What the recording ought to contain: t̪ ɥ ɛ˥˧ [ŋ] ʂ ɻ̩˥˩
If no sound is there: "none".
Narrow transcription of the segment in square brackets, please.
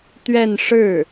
n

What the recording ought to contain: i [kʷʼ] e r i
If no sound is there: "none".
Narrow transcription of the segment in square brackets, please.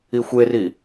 xʷ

